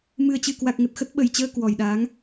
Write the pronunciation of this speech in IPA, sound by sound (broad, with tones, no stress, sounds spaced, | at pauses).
m ɨ˨˩ ə̯ t͡ɕ ɨ˨˩ k w a˨˩ k̚ ŋ ə˨˩ t̚ x ə˦˥ t̚ ɓ ə˨˩ j t͡ɕ əː˧ k w ɔ˨˩ j ɗ aː˨˦ ŋ